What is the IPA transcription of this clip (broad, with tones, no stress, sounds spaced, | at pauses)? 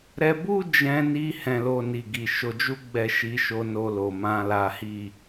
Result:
ɾ ɛ˧ b u˦ d͡ʒ ɛ̃˧ n i˧ h ɛ̃˨ l o˨ n i˨ ɡ i˨ ʃ o˨˦ d͡ʒ u˦ ɡ͡b ɛ˦˨ ʃ i˧ ʃ o˧ n o˧ l o˨ m ã˨ l a˨˦ h i˦˨